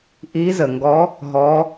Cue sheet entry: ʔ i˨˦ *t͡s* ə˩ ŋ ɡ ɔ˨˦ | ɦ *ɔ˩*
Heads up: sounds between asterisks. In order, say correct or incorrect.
incorrect: z, incorrect: ɔ˨˦

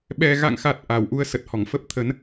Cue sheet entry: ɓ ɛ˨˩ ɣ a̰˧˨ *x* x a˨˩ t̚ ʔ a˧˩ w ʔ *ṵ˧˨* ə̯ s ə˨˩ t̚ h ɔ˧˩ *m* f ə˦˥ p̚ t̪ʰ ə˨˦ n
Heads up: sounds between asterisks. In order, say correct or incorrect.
incorrect: ŋ, incorrect: u˨˦, incorrect: ŋ

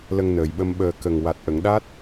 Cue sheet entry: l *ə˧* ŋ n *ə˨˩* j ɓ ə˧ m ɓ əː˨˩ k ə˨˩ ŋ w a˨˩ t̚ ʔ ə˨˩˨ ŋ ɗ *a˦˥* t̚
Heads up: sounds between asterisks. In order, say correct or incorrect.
correct, incorrect: əː˨˩, correct

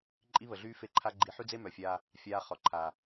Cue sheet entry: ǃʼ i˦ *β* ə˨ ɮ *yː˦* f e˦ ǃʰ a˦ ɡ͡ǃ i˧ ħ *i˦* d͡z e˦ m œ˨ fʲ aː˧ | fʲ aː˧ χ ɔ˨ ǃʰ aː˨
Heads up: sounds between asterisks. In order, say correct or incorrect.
correct, correct, incorrect: y˦

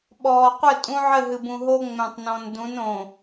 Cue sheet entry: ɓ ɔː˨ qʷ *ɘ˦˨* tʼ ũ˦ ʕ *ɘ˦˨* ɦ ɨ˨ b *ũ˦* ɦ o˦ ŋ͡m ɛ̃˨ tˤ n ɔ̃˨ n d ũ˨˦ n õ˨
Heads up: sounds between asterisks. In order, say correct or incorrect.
correct, correct, incorrect: ũ˨

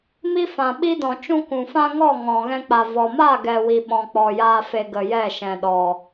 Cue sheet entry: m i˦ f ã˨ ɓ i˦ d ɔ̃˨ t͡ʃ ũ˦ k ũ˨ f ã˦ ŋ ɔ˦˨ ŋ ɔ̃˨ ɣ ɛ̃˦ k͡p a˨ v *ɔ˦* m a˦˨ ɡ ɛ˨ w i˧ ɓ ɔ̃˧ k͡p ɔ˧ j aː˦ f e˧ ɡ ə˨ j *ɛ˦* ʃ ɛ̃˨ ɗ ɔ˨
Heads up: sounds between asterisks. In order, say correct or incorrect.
incorrect: ɔ˨, incorrect: ɛ˦˨

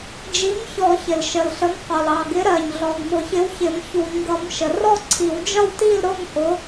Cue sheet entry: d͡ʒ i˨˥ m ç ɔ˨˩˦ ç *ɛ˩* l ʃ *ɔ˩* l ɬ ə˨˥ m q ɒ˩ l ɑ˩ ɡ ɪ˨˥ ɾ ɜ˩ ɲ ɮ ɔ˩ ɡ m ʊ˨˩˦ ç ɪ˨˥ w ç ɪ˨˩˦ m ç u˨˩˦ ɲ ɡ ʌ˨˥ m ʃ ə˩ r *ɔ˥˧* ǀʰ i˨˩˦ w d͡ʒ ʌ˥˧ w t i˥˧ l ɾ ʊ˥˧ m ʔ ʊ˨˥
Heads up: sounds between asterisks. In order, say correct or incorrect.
incorrect: ɪ˩, incorrect: ə˩, correct

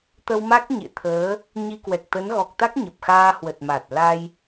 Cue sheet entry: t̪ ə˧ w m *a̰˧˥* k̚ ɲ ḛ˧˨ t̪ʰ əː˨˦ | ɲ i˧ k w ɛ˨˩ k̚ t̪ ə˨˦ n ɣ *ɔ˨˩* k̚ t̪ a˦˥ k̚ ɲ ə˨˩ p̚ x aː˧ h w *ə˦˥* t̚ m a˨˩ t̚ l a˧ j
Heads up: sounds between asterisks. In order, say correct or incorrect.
incorrect: a˦˥, correct, incorrect: ə˨˩

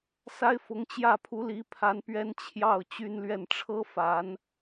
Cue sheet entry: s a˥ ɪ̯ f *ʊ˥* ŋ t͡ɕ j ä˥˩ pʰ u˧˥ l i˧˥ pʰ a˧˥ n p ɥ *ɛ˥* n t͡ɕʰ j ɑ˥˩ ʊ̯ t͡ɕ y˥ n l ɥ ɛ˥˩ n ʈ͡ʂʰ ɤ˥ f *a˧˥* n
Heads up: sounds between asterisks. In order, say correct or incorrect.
incorrect: ʊ˧˥, correct, correct

